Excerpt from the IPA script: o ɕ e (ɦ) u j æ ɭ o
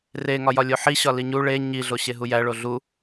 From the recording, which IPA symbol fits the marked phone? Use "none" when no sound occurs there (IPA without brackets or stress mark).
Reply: ɦ